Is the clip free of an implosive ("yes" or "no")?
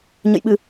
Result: no